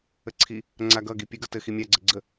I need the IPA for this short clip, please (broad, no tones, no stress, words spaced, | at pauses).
əǀʰi | ŋ͡ǀaɡʌɡi pʲəɡʌ tɘ ximʲaɡ͡ǀə ɡ͡ǀə